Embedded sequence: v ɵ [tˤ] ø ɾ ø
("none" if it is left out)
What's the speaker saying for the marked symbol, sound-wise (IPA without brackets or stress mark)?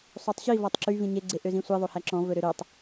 ɾ